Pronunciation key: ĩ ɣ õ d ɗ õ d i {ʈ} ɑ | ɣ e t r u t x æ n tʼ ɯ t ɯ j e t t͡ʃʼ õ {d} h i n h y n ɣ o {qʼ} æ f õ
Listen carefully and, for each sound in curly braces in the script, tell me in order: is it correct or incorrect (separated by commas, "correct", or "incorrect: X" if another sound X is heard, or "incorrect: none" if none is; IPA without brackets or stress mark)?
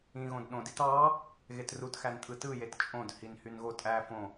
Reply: incorrect: t, correct, incorrect: tʼ